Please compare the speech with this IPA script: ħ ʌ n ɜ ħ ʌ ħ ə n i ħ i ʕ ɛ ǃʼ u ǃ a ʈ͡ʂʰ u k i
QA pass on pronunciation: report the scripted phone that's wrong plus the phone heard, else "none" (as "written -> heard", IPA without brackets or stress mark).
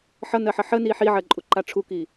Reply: ɛ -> ɜ